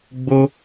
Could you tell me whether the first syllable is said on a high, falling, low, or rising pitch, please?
high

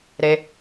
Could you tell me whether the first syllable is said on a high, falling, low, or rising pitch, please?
high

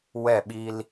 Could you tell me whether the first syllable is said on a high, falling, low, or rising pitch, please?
falling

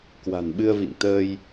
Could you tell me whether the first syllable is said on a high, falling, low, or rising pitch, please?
low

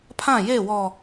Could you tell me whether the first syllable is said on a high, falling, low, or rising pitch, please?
falling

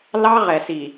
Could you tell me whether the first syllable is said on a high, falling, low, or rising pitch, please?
high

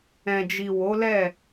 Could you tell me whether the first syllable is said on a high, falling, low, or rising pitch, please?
low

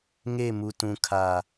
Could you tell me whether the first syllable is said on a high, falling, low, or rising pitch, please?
falling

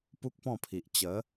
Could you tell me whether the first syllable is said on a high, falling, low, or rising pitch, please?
high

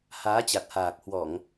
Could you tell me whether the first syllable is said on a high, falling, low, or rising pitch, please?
rising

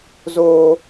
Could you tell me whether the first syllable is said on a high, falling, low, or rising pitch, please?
high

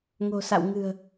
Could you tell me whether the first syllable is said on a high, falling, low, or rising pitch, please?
low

